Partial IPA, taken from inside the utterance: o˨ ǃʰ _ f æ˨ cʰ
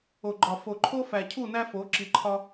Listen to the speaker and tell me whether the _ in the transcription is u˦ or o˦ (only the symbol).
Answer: o˦